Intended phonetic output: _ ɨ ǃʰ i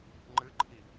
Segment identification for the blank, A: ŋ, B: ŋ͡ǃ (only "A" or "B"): B